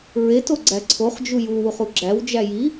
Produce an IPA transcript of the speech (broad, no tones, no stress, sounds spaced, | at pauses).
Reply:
ɹ e t o ɡ͡ǀ æ ǀʰ o χ d͡ʒ u j u w u χ u ɡ͡ǁ æ w d͡ʒ æ j i